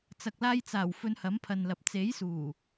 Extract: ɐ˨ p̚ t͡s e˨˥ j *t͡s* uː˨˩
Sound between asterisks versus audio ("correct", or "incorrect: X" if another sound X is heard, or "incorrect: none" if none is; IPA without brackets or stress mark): incorrect: s